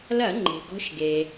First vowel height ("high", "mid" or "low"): low